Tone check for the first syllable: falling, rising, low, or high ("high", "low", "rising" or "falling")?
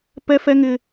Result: high